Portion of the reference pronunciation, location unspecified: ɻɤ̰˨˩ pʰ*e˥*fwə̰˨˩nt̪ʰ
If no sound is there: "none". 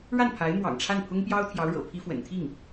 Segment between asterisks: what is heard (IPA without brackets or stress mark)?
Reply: i˥